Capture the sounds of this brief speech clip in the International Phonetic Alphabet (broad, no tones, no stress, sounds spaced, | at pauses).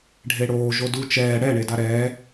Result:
ɖʱ e ɽ oː ʒ o d u t͡ʃ ɛː ɽ ɛ ɳ e d a ɾ ɛː